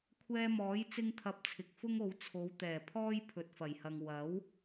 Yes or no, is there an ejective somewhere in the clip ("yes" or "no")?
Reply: no